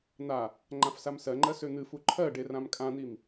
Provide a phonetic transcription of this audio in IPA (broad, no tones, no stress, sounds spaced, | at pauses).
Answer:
n̪ a | ŋ͡ǃ ã f s a m s ɜ ŋ͡ǃ ɜ s ø n̪ ɨ f u ǃʰ ɜ ɖ e r ã m kʼ ã n̪ i m